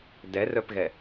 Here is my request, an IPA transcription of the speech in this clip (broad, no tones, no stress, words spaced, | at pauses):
dɛrœpɣɛ